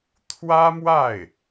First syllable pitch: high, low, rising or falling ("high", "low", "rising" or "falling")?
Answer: high